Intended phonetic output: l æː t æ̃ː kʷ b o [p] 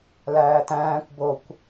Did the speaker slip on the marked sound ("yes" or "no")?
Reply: yes